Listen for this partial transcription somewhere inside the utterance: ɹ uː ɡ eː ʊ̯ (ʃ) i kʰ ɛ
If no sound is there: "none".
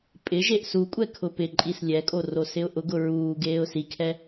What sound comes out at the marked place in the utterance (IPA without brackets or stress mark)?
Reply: s